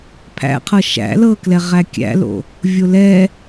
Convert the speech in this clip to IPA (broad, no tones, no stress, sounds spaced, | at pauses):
pʰ æ̰ qʰ ɤ ʃ æ̰ l ɤ k l ɛ ʁ æ kʲ æ̰ l o̰ | vʲ o l ɛ